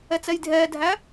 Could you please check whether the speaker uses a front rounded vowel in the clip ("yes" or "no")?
no